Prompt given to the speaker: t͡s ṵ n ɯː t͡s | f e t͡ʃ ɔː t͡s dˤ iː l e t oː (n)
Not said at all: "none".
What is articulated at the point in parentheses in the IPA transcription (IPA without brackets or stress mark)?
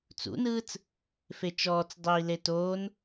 n